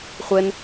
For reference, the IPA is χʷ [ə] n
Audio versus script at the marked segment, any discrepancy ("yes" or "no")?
yes